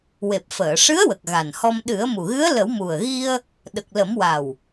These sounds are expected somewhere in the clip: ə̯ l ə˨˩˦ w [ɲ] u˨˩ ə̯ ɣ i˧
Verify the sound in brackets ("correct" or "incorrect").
incorrect